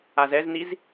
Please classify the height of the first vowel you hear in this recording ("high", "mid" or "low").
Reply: low